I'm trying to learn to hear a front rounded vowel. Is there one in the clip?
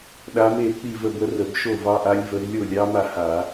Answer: no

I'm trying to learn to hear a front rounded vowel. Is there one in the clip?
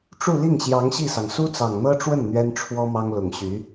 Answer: yes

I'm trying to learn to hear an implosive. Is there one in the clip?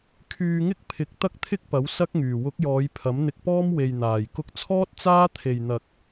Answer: no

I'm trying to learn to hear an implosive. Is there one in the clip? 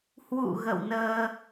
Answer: no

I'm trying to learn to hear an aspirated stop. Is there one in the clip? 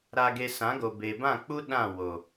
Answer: no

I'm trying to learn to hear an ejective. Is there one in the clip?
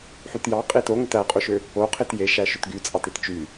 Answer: yes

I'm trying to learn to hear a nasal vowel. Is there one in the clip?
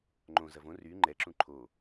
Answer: yes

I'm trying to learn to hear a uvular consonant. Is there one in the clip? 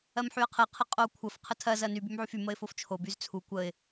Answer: yes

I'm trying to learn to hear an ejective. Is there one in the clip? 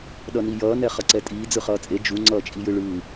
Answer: yes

